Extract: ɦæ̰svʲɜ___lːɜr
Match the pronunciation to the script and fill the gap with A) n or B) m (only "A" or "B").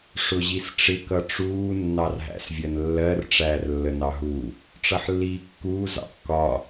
A